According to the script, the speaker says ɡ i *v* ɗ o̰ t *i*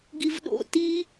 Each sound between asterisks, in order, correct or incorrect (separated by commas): correct, correct